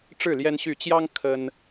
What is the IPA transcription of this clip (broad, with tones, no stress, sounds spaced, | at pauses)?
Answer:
ʈ͡ʂ ɻ̩˥˨ l j ɛ˦ n ɕ y˥˨ t͡ɕ j ɑ˦ ŋ kʰ ə˦ n